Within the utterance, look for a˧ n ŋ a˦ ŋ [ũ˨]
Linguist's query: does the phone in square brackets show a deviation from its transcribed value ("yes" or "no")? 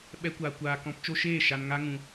yes